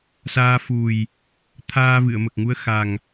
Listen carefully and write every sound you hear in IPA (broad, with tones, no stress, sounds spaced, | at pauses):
s aː˧ f u˨˩ j | t̪ʰ aː˧ v ɨ˨˩˨ ə̯ m ə˨˩ k̚ ŋ u˧˥ ə̯ x a˨˩ ŋ